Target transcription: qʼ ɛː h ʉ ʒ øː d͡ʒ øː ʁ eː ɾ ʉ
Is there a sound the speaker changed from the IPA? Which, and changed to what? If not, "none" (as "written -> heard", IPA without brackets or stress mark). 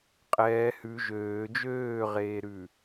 none